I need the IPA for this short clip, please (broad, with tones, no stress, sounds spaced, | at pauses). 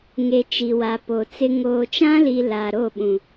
ŋ e˨ t͡ʃ i˨ w a˨ p o˨ t͡s ɪ˦ ŋ oː˨ t͡ʃ ã˦ l i˨ l a˨ ɾ o˦˨ ɓ ũ˨